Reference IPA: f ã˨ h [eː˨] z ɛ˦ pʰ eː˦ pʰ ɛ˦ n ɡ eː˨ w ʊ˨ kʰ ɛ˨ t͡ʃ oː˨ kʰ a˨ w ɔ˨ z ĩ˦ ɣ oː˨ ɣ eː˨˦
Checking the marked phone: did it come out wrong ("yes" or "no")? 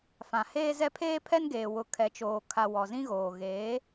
yes